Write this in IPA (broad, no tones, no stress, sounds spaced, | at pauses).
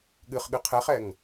ɠ ɨ χ ɠ ɨ qʰ ɛ χ ɛ ŋ